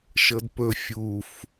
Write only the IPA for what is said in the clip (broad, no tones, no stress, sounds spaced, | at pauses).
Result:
ʃ ɤ d p ɵ fʲ u f